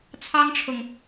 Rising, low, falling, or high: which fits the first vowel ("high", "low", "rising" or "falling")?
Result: high